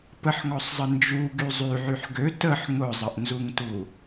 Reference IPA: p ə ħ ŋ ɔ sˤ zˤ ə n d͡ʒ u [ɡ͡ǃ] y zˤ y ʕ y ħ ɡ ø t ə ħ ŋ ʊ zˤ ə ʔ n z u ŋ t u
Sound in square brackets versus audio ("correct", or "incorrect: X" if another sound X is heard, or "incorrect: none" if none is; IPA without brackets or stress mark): incorrect: ɡ